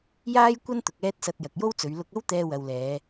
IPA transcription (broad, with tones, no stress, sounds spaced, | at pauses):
j aː˥ j kʷ ɐ˥ n t̪ ʊ˨ k̚ ɛː˧ t̚ s ɐ˨ t̚ j ɐ˨ k̚ j o˥ w t͡s ɵ˨˧ ɥ l ʊ˧ k̚ ɐ˥ w t̪ ɛː˧ w ɐ˨ w l ɛː˨˧